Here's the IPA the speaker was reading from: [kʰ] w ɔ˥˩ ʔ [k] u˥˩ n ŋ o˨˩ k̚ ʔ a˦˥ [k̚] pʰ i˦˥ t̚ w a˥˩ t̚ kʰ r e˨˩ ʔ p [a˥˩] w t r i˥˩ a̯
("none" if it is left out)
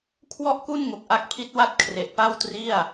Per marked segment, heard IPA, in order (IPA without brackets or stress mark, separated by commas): kʰ, k, k̚, a˥˩